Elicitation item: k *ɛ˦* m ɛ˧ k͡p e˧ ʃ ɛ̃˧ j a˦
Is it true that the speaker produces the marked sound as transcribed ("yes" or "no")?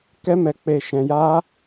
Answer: yes